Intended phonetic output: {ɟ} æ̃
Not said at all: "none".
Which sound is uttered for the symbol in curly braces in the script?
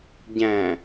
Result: ɟ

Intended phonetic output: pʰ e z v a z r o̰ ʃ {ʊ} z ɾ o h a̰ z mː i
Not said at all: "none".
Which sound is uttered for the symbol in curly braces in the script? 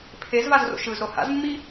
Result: ɯ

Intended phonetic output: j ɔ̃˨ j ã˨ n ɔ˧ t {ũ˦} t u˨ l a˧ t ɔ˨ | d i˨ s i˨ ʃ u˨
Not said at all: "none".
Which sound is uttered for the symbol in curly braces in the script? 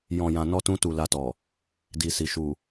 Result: ũ˧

